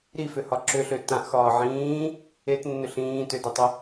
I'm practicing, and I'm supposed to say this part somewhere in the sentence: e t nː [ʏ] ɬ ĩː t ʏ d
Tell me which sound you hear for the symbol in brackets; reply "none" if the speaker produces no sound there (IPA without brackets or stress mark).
ʏ